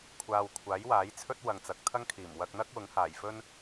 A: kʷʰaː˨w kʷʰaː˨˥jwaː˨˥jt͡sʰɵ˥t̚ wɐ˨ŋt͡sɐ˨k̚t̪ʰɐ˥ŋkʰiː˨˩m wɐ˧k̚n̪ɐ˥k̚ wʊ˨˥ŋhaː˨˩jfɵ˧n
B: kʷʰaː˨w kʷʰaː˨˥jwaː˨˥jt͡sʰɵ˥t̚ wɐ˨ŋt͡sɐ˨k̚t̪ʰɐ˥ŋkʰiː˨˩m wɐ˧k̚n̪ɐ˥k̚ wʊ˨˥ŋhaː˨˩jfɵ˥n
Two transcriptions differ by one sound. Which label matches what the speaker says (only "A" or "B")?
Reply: B